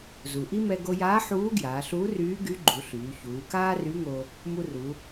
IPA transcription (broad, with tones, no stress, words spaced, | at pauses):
zu˩ ʔi˥mɛ˧ ɡo˧jaː˧˥ ħuː˧˥ɡjaː˩˧ɬuː˧˥ryː˧˥ ɡy˧˥ɡ͡ǃu˩˧ɬyː˩˧ çuː˩˧kaː˥ ry˧˥ŋo˧ | mu˧ru˩˧